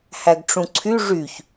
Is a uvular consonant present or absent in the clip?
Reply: absent